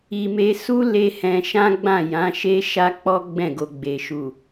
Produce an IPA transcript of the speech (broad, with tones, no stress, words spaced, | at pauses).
i˧ me˧su˦ le˦hɛ̃˧ ʃã˦ɡ͡bã˦˨ jã˨˦ʃe˦ ʃa˦k͡pɔ˦ ɡ͡bɛ̃˦˨ɡo˧ɡ͡be˨ ʃu˨